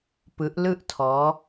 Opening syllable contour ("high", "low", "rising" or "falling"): rising